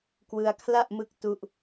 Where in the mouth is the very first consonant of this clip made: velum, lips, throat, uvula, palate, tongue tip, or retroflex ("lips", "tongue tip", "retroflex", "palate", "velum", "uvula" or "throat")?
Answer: velum